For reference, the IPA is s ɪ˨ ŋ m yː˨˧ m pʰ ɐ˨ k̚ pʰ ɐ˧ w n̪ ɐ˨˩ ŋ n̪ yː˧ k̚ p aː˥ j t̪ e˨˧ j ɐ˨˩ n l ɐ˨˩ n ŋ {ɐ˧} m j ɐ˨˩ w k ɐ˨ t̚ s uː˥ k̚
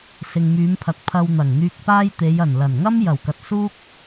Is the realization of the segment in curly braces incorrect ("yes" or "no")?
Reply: yes